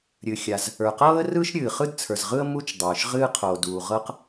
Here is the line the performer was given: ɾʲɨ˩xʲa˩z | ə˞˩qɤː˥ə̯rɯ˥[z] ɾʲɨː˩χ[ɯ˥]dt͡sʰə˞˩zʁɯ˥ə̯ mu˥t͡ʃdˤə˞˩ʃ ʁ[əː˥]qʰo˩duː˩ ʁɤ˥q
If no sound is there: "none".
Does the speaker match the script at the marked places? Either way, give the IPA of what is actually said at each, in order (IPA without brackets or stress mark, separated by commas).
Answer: ʃ, ɯ˥, ɨː˥